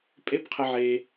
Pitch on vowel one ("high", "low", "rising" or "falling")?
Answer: high